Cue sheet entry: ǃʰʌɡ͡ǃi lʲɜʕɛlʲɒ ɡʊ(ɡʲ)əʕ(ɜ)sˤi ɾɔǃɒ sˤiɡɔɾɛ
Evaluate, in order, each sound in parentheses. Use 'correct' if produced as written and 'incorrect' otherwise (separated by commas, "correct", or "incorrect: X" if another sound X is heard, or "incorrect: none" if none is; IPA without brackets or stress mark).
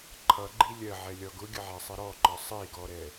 correct, incorrect: æ